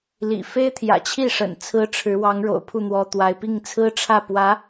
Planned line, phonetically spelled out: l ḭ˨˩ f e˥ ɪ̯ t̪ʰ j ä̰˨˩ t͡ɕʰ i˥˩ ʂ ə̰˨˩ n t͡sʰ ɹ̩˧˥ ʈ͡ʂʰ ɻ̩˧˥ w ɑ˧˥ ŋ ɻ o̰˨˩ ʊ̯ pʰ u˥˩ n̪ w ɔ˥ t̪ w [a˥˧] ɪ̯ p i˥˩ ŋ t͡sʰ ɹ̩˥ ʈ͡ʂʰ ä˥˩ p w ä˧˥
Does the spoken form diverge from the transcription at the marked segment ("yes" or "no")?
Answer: yes